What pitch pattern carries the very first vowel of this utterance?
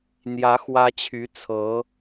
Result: rising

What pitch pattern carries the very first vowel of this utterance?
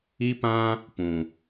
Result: high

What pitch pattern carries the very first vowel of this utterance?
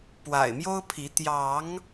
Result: low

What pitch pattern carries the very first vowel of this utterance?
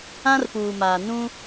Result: high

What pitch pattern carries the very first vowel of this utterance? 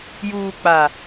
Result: low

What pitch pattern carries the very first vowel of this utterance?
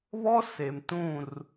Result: high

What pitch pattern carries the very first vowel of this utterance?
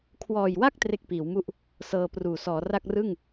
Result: low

